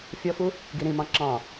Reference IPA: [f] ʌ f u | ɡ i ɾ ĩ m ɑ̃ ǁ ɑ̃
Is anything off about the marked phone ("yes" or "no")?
yes